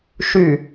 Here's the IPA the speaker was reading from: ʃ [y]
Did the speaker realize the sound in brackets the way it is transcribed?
yes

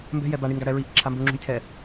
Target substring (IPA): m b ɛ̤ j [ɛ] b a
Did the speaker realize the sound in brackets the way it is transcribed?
yes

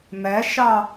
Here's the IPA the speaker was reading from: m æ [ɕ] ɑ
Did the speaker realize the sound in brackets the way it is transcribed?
no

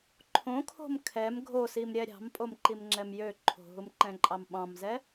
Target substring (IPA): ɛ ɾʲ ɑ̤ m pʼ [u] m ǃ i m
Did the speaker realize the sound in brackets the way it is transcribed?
no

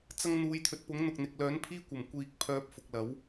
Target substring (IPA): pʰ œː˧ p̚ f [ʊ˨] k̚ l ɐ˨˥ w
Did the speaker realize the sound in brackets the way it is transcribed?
yes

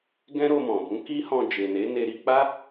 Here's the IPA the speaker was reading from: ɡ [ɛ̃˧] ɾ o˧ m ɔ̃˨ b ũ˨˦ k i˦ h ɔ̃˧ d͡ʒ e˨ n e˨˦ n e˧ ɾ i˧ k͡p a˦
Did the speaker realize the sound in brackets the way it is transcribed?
no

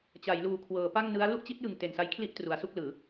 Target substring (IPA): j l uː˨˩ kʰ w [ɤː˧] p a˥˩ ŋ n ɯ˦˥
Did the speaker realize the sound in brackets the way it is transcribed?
no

